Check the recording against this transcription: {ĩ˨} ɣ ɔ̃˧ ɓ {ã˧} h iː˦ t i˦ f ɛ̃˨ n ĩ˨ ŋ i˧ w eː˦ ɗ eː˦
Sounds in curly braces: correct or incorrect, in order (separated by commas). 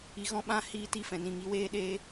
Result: incorrect, correct